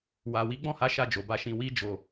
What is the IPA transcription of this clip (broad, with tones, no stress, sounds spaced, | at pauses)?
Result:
w a˨ w i˨˦ ɡ͡b ɔ̃˦˨ h a˨˦ ʃ a˦˨ d͡ʒ o˨ b a˧ ʃ ĩ˧ w i˧ d͡ʒ o˨